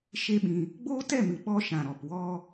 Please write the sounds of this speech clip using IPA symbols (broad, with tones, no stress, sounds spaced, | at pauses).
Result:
ʃ e˦ ɓ ĩ˧ | ɡ͡b oː˦ t ɛ˦˨ m ɨ˨ ɓ ɔ˧ ʃ ã˨ ɾ ɔ˨ p w ɔ˧